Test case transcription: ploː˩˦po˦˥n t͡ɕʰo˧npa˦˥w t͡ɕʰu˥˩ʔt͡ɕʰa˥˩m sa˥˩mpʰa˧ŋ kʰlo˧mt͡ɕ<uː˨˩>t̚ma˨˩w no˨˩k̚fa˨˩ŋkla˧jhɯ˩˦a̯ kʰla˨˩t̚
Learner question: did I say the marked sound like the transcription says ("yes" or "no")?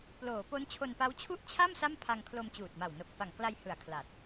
yes